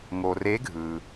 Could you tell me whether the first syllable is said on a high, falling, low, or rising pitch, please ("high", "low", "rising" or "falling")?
low